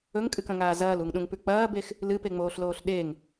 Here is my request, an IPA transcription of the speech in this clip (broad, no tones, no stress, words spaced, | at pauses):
ɵŋkʼɨkɐ̃ŋaː zɐːluŋɗũŋpʉ k͡pɐːbex | lɨpeŋ͡moːɬloːɬ ɗeŋ